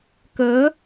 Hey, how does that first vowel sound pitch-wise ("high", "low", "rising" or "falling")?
rising